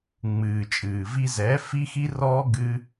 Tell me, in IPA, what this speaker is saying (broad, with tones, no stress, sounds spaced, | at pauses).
ŋ͡m ɨː˨ t͡ʃʼ ɨː˨ v i˧ z ɛː˨˦ f i˦ x i˦ r ɔː˦ ɡ ɨ˦